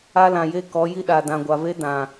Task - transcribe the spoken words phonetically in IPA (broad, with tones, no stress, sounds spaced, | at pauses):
a˦ l ã˨ j e˦ k ɔ˨˦ j i˦ ɗ a˨ d ã˨ ɡʷ a˨ v e˦ d ã˨